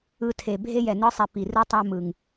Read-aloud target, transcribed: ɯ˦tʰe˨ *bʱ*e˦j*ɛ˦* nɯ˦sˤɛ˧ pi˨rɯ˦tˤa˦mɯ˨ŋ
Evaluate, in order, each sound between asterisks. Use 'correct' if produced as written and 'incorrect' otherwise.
correct, incorrect: ɛ˨

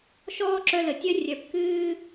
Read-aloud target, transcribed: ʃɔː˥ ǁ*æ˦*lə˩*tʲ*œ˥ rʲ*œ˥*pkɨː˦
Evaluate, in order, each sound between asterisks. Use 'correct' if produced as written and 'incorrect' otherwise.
incorrect: œ˦, correct, incorrect: œ˩

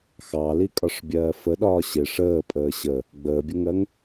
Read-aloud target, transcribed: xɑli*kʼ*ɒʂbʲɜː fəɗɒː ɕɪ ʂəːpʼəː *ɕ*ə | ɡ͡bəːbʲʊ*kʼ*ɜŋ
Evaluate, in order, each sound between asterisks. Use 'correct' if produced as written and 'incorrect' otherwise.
correct, correct, incorrect: ŋ

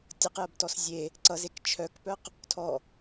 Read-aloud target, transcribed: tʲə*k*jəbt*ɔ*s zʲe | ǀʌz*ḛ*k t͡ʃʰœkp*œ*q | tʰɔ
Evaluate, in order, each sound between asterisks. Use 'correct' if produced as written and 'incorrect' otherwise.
incorrect: q, correct, incorrect: e, correct

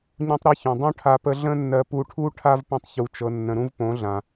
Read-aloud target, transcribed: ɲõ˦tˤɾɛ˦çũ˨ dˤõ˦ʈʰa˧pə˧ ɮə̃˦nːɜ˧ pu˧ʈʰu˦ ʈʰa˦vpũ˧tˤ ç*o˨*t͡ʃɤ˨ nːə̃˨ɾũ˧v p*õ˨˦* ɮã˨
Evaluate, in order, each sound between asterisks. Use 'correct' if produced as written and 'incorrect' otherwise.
incorrect: u˨, correct

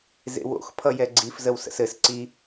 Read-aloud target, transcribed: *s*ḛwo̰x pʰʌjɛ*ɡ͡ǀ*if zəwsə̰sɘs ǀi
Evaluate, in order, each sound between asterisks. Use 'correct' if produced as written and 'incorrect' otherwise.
incorrect: z, correct

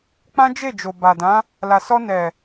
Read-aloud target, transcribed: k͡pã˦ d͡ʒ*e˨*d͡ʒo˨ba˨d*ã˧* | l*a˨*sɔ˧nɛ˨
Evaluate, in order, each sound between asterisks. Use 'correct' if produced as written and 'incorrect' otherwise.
incorrect: e˦˨, incorrect: ã˨˦, correct

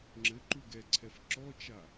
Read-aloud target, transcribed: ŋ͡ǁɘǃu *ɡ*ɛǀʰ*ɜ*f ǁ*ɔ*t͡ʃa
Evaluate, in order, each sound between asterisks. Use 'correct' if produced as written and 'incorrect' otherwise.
correct, incorrect: ɛ, correct

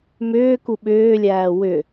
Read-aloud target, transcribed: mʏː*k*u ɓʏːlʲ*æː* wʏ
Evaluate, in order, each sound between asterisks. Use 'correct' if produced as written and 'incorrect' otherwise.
correct, correct

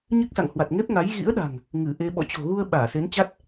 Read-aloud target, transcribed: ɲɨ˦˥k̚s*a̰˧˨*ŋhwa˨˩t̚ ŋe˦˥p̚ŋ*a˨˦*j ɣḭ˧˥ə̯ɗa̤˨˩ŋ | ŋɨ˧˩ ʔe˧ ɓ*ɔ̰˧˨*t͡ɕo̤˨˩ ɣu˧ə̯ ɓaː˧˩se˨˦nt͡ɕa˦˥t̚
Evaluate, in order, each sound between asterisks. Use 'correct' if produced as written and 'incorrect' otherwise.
correct, correct, correct

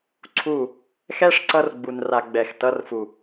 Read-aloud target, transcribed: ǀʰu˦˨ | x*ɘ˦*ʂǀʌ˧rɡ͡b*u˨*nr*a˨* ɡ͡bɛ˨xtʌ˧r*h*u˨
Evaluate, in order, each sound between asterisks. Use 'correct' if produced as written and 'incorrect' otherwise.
incorrect: ɛ˦, correct, correct, incorrect: f

